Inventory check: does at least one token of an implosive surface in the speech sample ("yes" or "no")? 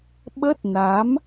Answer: yes